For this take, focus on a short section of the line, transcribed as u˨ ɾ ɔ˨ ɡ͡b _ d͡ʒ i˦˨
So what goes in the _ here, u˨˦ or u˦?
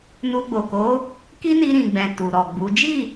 u˨˦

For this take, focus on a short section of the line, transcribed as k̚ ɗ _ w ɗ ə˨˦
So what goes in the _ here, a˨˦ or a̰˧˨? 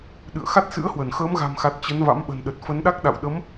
a̰˧˨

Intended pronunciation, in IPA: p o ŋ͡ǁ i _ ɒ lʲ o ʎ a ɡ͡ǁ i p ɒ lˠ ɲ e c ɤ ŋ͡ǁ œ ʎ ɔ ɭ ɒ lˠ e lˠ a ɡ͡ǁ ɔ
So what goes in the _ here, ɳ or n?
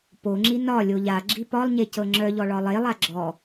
n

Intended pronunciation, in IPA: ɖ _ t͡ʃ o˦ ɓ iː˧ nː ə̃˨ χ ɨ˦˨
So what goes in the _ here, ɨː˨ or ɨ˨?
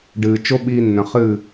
ɨː˨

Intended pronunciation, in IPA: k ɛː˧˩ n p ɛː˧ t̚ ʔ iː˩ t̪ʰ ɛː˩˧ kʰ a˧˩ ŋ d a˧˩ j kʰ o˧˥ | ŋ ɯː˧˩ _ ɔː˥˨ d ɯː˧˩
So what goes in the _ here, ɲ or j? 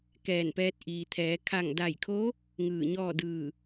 ɲ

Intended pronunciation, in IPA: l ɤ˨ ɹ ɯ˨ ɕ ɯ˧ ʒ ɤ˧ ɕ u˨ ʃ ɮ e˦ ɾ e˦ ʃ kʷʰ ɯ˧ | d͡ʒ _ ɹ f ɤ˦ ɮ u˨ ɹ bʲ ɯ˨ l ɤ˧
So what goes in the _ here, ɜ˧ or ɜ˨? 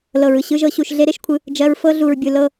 ɜ˧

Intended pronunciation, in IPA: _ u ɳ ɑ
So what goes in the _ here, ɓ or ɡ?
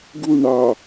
ɡ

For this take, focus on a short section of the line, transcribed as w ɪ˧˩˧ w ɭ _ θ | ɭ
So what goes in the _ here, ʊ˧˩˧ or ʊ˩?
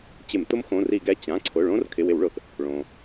ʊ˩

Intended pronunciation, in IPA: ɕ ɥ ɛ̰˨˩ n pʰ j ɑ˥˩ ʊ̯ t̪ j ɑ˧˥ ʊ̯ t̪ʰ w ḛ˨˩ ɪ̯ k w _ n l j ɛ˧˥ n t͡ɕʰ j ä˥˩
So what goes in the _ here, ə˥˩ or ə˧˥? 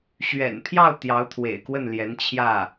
ə˥˩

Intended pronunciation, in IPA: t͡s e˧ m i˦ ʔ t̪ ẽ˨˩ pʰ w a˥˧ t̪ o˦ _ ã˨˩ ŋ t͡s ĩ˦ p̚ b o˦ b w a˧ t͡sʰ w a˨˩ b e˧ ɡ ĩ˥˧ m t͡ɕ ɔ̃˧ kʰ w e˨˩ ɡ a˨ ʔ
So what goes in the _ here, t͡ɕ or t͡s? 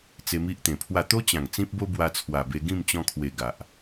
t͡ɕ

